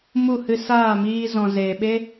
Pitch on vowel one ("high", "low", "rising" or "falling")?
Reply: falling